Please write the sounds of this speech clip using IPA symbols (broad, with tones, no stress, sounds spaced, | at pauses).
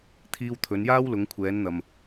t̪ʰ iː˧ w t̪ʰ ɵ˨˧ n j aː˥ w l ʊ˨˧ ŋ kʷʰ ɛː˨˧ n n̪ ɐ˨ m